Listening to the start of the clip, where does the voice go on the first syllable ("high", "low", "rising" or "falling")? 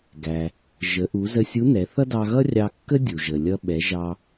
low